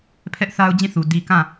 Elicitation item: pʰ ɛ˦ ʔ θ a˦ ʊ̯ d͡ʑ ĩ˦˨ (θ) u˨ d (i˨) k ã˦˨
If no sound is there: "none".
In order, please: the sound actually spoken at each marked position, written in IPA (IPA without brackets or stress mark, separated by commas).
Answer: θ, i˨